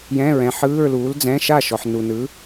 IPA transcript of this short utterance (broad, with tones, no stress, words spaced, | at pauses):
jɛ̃˧˥˧ɹɛ̃˨˥ħɯː˧˥˧ɹ luː˨˥ld͡zɛ̃˧˥˧ ʃa˥˩ ʃɔ˨ħnu˨nɯ˨˥